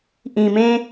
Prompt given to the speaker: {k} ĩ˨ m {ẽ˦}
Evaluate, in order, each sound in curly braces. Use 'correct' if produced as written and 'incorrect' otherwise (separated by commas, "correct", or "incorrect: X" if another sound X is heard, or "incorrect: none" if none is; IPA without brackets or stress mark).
incorrect: ʔ, correct